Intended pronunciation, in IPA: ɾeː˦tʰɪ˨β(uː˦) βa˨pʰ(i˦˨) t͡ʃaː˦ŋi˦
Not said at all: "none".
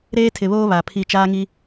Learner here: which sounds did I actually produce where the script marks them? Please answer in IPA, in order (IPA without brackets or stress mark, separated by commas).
oː˦, i˦˨